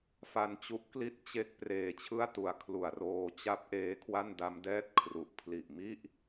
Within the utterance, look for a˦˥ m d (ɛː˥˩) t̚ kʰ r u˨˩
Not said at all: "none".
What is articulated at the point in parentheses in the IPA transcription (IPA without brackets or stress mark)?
ɛː˥˩